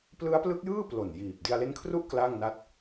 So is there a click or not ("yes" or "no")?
no